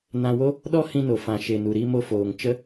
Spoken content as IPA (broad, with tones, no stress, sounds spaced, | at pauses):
n ã˧ w o˦ | ɗ ɔ˦ h ĩ˧ n o˨ f ã˨ ʃ e˨ n u˨ ɾ i˧ m o˧ f oː˨ ŋ t͡ʃ ə˦